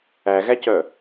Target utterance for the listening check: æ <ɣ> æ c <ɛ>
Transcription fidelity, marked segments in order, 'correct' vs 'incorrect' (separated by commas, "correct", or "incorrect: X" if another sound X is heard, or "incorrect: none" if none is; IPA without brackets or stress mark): correct, incorrect: œ